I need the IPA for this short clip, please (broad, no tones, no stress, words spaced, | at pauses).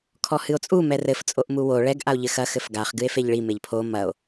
kʰɔhɨo̯t͡sʼu mɛrɘf t͡sʼoʔmuwo ɭɛɡ ʔao̯ʎɘxɐ xɘfɡaχ ɡɨe̯feʎɭi meʎpʰo mɐo̯